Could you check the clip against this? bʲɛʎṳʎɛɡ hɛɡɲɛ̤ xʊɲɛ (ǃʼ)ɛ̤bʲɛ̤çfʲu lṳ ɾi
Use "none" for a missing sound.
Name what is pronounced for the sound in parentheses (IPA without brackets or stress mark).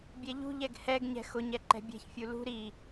ǃ